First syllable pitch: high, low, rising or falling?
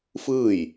falling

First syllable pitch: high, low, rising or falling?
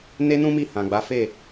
high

